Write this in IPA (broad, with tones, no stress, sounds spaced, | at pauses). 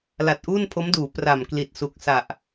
l a˨˩ t̚ ʔ uː˥˩ n pʰ o˦˥ m d uː˩˦ p r a˨˩ m k l i˨˩ t̚ s u˨˩ k̚ s a˨˩ ʔ